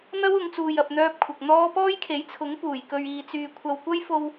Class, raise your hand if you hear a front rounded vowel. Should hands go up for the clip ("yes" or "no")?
yes